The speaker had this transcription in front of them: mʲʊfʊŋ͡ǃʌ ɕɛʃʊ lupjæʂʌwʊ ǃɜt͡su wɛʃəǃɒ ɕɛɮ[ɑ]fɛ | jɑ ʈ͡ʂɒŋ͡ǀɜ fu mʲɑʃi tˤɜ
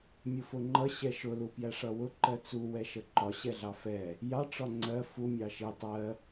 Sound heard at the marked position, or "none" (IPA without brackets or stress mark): ɑ